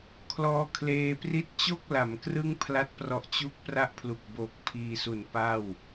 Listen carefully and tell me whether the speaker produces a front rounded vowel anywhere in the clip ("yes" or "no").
no